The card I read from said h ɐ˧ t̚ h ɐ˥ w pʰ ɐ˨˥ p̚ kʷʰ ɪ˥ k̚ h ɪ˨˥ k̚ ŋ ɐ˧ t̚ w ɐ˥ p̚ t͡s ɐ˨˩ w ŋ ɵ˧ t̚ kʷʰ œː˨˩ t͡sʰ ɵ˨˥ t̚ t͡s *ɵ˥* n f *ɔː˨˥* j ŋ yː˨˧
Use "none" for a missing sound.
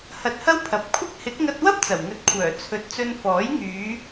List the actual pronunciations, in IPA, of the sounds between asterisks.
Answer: ɵ˧, ɔː˨˥

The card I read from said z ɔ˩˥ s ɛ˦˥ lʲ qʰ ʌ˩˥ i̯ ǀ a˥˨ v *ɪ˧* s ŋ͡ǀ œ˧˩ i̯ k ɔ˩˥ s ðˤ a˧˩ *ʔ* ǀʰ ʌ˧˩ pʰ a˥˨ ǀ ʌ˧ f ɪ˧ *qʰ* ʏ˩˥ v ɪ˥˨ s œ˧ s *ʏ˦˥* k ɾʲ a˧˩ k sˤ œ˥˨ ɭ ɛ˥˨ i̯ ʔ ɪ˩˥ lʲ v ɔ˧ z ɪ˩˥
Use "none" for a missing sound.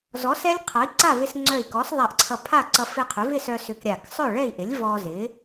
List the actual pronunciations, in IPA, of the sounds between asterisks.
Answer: ɪ˧, ʔ, qʰ, ʏ˧

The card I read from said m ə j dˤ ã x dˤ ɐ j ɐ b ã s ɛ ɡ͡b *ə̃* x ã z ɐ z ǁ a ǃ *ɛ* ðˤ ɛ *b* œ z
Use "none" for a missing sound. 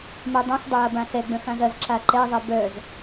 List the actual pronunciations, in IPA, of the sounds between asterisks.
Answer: ə̃, ɛ, b

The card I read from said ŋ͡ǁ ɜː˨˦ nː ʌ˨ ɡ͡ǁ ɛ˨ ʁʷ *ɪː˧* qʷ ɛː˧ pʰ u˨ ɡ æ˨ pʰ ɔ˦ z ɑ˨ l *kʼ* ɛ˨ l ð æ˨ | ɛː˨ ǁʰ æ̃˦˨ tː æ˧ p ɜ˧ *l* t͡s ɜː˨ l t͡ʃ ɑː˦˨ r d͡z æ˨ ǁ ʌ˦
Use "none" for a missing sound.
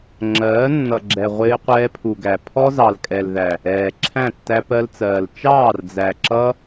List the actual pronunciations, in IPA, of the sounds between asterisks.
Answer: ɪː˧, kʼ, l

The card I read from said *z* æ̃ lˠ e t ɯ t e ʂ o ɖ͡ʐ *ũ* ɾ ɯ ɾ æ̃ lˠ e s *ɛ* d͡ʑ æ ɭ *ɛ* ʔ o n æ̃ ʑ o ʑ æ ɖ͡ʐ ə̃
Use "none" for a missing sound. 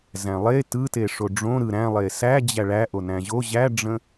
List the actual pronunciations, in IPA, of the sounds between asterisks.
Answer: z, õ, æ, æ

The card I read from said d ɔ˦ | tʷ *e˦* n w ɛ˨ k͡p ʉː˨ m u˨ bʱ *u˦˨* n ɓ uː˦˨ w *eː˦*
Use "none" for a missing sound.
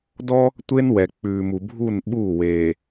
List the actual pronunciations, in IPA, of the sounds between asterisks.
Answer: e˦, u˦˨, eː˨

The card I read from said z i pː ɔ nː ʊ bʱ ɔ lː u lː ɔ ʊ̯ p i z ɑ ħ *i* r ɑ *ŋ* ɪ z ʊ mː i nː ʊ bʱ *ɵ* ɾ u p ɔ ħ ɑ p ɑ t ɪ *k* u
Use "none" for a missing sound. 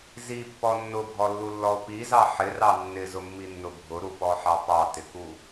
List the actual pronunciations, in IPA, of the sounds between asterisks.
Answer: ɪ, nː, ʊ, k

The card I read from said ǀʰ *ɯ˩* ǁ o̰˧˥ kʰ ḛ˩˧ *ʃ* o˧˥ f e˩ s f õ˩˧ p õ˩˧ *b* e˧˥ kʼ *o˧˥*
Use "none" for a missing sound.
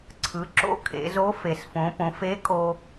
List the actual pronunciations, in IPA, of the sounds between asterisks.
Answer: ɯ˩˧, z, f, o˧

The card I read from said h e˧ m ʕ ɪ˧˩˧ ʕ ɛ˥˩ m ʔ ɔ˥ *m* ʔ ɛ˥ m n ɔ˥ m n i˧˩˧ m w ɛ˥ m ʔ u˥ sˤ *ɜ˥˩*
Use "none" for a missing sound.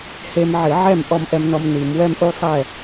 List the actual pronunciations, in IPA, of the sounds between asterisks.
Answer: m, ɛ˥˩

